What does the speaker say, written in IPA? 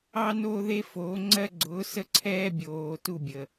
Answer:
ɑ˦ n oː˦ ð e˦ f oː˨˦ ŋ͡ǀ ɜ˦ ɡ͡ǀ ʊː˨˦ s ə˦ ǀʰ ɛː˦ bʲ oː˨ t u˦˨ bʲ əː˨

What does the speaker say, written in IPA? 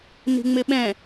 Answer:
n i̤ ŋ͡m ɪ ɓ ɛ̃

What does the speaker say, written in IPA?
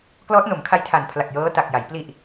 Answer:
k l ɔː˦˥ t̚ n o˩˦ m kʰ a˦˥ j tʰ a˨˩ n pʰ l a˨˩ k̚ j ɤː˦˥ t a˨˩ k̚ j a˩˦ j p l i˨˩ ʔ

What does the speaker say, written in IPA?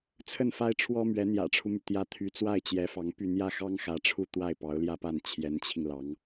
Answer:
t͡sʰ ə˥˩ n f a˥ ɪ̯ ʈ͡ʂʰ w ɔ˥ m ɥ ɛ˧˥ n̪ j ä̰˨˩ ʈ͡ʂʰ u˦ m y˩ t̪ j ä˥ t̪ʰ y˧˥ t͡s w a˥˩ ɪ̯ t͡ɕ j ɛ˧˥ f ɑ˧˥ ŋ p y˥˧ n̪ j ä˥˩ x ɑ˥ ŋ x ä˧˥ ʈ͡ʂʰ u˥˧ t̪ w a˥˩ ɪ̯ p ɑ˧˥ ʊ̯ l j ä˥˧ p a˥˩ n t͡ɕʰ j ɛ˧˥ n t͡ɕʰ i˧ ŋ l ɑ˧˥ ŋ

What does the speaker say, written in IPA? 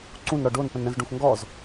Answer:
ǀ ũ n ɾ ɔ ɖ o n p ə̃ n ɾ ə̃ z ɖ ũ x ŋ ɡ ɔ z

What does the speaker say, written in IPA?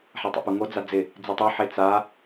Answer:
ħ a tˤ ɛ̰ p u ŋ o d͡z a d͡z ɪ | d͡z i tˤ o ħ e t͡s a

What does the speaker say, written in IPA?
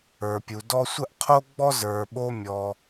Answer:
ə˞˨ pʲ u˨ d ɔ˥ sʷ ə˥ ʔ qʰ o˥ ɡ͡b ɔ˥ z ə˞˨ ɓ o˦ mʲ ɔ˨

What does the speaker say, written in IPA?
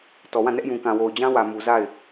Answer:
t ɔ˨ w ã˦˨ n ɛ˦ ʔ j ũ˨ k ã˨ w o˨ ʊ̯ d͡ʑ ã˦ w ä˨ m u˨ z a˦˨ ɪ̯

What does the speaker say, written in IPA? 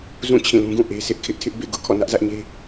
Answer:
z ũ˦˨ t͡ɕʰ ĩ˦˨ l ũ˦ ɡ ũ˦˨ ʔ e˦ sʰ ɪ˦ ʔ kʰ ɪ˦ ʔ tʰ ɪ˦ ʔ b ḛ˦˨ ɡ ʊ˦ ʔ kʰ ɔ̰˦˨ n ä˦ ʔ z ä˦ ʔ ɲ e˦

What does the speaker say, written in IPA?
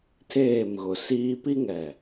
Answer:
tʰ eː˦˨ m ɣ ʊ˨ s iː˦ p i˦ ŋ ɛ˨

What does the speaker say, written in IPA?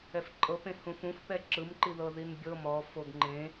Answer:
ɛ f ǃʼ ɤ p ẽ h ũ f ũ f p ɛ ǁ ɯ m ǃ i ð ɤ ð i n bʲ ɤ m ɔ f o ɡ ŋ͡ǃ ẽ

